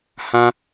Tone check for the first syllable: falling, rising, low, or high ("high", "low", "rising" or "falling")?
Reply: high